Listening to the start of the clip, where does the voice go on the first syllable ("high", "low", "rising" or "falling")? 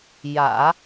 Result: low